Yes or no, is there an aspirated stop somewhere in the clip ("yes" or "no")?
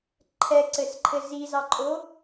yes